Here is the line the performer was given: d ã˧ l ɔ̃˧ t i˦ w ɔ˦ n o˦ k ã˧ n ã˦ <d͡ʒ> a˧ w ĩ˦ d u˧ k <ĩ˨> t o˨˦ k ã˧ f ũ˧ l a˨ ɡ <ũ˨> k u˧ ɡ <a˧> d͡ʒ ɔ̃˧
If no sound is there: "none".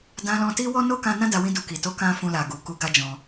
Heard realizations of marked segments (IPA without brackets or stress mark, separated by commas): d, i˨, u˨, a˦